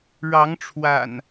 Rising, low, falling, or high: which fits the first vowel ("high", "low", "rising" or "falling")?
rising